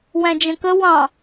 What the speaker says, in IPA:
w æ̃ d͡ʒ ə̃ k ə w ɑ̃

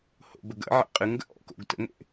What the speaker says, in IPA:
h o̰ b ə ɡ ə̰ ʕ ḛ qʼ ɨ ŋ ɡ ə̰ ʔ ɔ̰ k o̰ ɡ t ə̰ ŋ ḛ ʔ

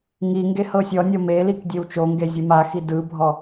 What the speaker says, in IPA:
ŋ i ŋ ɡ e h ɤ sʲ ɔ nʲ ɔ m e l i k dʲ e w t͡ʃ o ŋ ɡ e zʲ ɯ m a x i d ɯ bʱ ɔ

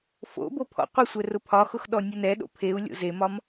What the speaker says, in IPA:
f o̰ b o pʰ ɔ̰ qʷ e sʷ ɛ r ʊ pʰ ɒ x ʊ x ɗ ɔ nʲ ɤ n ɛ ɗ o̰ pʰ e u̯ lʲ o̰ z e m ɒ m

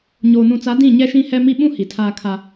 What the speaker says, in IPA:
ɲ oː˨ n ũ˨ t͡s a˨˦ d ĩ˦˨ ɲ ɛ˦ ʃ ĩ˦ h ɛ˦ m i˦ ɓ ũ˦ h i˨ tʰ aː˦ kʰ a˦

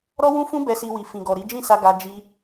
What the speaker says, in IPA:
ɾ ɔ˦ w ũ˦ f ũ˦ b ɛ˧ s i˧ w i˨ f ĩ˨ ɡ ɔ˨ ɾ i˨˦ d͡ʒ ĩ˦˨ s a˧ ɡ a˧ d͡ʒ i˦

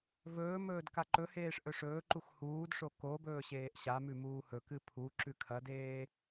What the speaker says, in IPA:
v ɵː m ɵː d k a ǃ ɵ h eː ʂ ʔ ɵ ʂ ɵː ǃ u x h uː d ʂ o k o b ɵː ɕ eː ʔ ɕ a m ʉ m uː h ɵ k ɨ pʰ u ǁ ʉ kʰ ɐ d eː

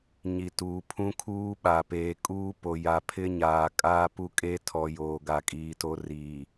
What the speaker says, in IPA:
ɲ i˨ t uː˨ pʰ ũ˦ kʰ uː˦ ɓ a˨ p eː˨ kʼ uː˦ p o˨ j a˨ pʰ ɪ˦ ɲ aː˨ kʼ aː˦ p u˦ kʼ e˦ tʰ ɔ˨ j oː˨ ɡ a˨ kʼ iː˨ t o˦ r iː˨

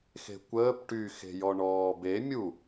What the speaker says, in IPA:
x e̤ kʷ əː p ʈ y x e̤ j ɔ ɳ ɔː b e mʲ u

